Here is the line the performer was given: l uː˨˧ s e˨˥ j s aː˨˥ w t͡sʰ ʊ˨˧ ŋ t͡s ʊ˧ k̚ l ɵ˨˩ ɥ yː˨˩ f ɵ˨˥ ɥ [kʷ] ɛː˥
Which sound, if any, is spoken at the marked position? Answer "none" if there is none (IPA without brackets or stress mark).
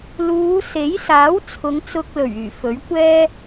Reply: kʷ